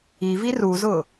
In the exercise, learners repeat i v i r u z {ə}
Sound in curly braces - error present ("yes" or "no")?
yes